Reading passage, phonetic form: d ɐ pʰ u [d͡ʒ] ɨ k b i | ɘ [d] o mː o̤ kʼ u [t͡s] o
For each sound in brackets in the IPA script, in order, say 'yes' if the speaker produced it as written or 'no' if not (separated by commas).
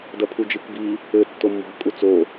yes, no, yes